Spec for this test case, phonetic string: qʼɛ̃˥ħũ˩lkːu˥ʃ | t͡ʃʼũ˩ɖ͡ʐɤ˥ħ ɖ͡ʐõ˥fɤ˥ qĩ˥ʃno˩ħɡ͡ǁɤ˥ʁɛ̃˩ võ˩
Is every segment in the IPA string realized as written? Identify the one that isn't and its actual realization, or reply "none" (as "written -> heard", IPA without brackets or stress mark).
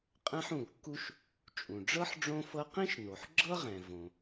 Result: none